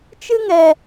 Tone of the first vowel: high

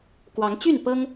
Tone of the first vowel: rising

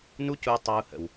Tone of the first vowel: high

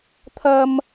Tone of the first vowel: high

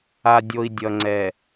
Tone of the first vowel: low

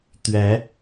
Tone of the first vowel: rising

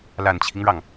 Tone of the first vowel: low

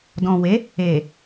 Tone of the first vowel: low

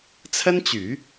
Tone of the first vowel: high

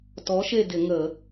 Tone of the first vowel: rising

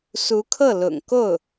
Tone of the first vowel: rising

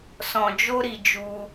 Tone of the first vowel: low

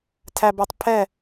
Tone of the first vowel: low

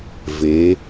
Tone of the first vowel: rising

